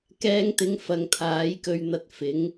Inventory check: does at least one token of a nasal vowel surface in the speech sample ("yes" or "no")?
no